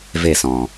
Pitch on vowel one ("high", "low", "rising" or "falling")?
falling